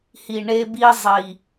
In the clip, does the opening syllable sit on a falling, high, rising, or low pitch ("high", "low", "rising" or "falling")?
low